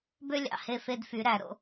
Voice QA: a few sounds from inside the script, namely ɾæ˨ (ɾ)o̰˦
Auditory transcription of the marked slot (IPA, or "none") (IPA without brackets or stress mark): ɾ